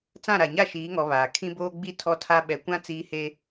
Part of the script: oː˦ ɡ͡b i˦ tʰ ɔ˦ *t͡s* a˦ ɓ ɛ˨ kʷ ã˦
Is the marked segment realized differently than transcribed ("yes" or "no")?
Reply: yes